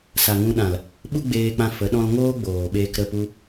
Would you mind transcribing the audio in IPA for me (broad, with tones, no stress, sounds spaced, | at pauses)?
s a˨ ŋ ũ˧ ɗ ã˨ l | ɓ u˦ ɡ͡b eː˧ k͡p ã˧ f ə˨˦ ɗ ɔ̃˦ l ŋ oː˦ ɡ͡b oː˨ ɓ eː˧ k ɾ ə˦˨ p u˦